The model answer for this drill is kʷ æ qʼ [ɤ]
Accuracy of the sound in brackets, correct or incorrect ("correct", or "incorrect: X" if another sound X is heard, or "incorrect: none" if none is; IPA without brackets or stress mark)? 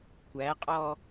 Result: incorrect: ɔ